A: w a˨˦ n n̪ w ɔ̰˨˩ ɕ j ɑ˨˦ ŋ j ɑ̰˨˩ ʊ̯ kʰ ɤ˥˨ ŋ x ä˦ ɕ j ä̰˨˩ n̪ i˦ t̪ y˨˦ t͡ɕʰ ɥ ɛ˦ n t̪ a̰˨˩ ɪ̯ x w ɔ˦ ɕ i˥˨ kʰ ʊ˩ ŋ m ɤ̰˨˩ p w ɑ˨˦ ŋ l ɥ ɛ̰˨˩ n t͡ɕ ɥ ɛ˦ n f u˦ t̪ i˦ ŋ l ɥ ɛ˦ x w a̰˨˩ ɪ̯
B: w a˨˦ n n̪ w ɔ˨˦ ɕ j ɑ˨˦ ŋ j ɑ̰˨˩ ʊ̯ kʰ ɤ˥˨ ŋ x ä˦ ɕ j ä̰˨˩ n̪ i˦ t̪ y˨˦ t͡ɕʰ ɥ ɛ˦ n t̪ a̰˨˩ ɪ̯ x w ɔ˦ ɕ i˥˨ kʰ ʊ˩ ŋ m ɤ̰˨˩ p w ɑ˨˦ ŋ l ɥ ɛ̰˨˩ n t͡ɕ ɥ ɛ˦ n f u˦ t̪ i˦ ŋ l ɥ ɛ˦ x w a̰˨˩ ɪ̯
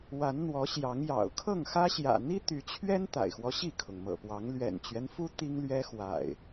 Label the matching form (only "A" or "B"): B